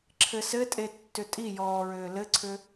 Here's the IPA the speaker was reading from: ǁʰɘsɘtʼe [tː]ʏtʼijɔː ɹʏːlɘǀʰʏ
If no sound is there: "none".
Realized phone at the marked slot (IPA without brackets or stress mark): tː